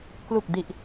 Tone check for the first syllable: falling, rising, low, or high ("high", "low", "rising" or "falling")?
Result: low